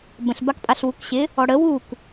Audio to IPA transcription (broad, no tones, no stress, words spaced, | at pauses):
bə̃ɬ bakpʼaɬwukɕɪ | ɔɽə wuk